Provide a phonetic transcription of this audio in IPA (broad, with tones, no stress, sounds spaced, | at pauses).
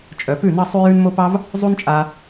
t͡ʃʼ œ˨ p ʉ˦˨ n ɑ˦ sˤ ʉ˦ j ʉ˦ n m o˦ p ɑ˦ v | zˤ u˦ n t͡ʃʼ a˧